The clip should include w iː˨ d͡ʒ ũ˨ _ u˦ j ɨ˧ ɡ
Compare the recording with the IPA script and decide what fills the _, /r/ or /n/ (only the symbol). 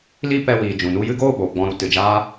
n